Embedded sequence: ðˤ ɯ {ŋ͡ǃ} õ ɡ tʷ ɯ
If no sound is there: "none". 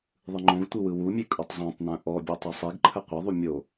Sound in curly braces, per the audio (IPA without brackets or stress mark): ŋ͡ǃ